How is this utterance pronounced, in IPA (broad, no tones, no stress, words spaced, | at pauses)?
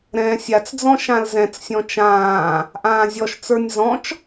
ɾɛ̃ːsʲat͡sd͡zɔ̃ ʃãlzɛ̃t͡ssʲɔ̃ t͡ʃãː | ʔãːzʲɔʃt͡sə˞nʲ zɔ̃t͡ʃ